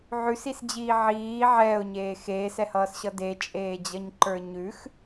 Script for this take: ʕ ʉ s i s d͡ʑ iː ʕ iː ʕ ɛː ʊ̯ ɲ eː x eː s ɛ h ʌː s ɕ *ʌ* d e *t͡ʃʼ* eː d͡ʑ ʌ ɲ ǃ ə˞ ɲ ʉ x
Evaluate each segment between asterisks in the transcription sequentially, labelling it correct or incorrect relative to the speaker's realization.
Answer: correct, correct

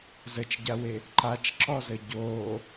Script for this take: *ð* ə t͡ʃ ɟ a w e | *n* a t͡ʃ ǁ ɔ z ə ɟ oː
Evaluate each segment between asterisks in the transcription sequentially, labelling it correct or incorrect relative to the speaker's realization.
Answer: incorrect: z, incorrect: ǃ

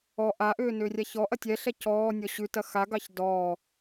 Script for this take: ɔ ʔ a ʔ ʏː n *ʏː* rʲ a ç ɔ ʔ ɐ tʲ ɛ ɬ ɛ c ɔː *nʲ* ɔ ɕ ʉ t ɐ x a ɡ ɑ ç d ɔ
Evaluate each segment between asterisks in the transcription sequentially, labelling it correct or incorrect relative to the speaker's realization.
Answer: correct, correct

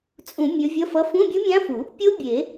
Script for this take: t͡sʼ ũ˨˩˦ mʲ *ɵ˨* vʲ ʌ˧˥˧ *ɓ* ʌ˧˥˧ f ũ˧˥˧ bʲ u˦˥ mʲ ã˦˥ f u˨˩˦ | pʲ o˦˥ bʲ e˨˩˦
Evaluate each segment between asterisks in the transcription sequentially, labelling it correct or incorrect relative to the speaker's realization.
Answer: incorrect: ɵ˨˦, incorrect: f

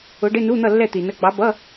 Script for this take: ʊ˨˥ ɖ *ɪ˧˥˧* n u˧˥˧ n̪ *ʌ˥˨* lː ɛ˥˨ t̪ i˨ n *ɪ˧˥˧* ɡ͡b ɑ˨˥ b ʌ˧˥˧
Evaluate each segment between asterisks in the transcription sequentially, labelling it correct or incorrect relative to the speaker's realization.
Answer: correct, correct, incorrect: ə˧˥˧

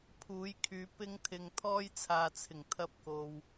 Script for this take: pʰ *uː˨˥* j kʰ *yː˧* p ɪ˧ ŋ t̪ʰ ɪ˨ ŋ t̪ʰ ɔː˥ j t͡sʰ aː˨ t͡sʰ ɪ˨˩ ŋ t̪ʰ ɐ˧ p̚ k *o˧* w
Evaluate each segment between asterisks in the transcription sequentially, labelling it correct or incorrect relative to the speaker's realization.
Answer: correct, incorrect: yː˨˧, incorrect: o˨

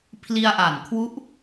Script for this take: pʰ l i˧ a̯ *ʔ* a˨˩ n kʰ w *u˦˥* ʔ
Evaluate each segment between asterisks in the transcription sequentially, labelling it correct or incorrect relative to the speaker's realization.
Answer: correct, correct

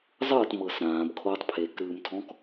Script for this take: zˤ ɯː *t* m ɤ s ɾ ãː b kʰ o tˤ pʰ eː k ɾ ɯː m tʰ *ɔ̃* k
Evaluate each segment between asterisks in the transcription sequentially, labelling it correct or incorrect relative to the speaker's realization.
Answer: correct, correct

